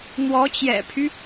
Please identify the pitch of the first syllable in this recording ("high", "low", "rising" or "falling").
rising